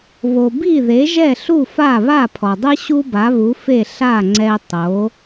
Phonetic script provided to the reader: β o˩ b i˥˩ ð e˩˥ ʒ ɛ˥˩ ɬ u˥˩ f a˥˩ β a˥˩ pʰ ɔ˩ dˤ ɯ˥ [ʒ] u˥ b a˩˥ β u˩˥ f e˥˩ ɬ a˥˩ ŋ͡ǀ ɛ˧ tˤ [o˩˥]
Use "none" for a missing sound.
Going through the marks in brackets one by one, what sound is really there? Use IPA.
ɕ, o˩˥

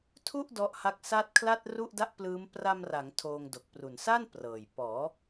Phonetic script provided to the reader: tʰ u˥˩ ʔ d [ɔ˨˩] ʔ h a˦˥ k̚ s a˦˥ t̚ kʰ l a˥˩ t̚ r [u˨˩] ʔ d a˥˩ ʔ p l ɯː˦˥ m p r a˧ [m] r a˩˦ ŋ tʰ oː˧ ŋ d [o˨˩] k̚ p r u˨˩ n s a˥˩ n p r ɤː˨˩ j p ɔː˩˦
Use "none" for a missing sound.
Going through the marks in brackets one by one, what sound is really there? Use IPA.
ɔ˦˥, u˥˩, m, o˨˩

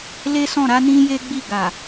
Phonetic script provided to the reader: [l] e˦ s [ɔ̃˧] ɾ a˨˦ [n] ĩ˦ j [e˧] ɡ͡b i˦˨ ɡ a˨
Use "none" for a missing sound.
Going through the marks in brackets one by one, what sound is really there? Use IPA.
l, ɔ̃˦˨, n, e˦

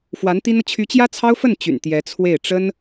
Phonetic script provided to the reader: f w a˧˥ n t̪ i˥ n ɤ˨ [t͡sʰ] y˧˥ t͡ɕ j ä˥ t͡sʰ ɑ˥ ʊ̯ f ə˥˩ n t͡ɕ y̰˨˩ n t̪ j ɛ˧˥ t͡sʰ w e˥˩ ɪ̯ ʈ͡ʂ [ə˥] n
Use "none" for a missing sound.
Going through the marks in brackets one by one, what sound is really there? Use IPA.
t͡ɕʰ, ə˥

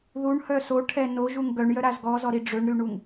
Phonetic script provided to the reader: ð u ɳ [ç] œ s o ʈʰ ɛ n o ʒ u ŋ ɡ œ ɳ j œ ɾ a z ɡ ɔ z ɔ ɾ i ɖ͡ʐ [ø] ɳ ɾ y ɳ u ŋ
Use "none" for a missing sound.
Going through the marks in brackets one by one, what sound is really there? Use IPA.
h, ø

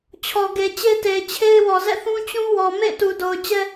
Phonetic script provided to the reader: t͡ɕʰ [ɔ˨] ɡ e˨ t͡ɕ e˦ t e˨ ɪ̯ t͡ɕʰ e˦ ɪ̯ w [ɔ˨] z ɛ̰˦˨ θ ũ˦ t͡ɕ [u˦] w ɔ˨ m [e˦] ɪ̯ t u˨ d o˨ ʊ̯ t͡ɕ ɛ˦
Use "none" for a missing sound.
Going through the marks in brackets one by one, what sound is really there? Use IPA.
ɔ˨, ɔ˨, ũ˦, ḛ˦˨

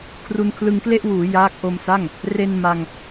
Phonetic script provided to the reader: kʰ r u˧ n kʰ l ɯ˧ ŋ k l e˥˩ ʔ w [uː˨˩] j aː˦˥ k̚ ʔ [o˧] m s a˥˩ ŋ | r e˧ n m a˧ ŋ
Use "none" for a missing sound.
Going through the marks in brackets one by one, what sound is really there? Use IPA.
uː˩˦, o˧

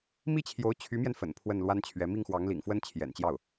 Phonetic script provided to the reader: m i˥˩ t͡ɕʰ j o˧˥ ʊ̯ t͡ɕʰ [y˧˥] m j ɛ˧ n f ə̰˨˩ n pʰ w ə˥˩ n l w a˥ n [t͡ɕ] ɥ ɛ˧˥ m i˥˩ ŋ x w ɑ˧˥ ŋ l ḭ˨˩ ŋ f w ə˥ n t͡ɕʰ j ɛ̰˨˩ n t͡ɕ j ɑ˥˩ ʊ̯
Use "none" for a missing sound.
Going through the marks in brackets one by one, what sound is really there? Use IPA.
y˧˥, t͡ɕʰ

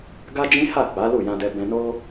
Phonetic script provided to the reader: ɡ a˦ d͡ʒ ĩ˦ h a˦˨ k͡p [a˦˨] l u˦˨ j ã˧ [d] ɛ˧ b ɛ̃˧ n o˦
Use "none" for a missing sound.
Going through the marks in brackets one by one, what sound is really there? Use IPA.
a˨˦, d

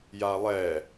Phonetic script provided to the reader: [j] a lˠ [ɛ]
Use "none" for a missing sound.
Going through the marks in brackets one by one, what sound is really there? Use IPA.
j, ɛ

